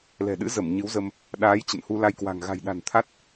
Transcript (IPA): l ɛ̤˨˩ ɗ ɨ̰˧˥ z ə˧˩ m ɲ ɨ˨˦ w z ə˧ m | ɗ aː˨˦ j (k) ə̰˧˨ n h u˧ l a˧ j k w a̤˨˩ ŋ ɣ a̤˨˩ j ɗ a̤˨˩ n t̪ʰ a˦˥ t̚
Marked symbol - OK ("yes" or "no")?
no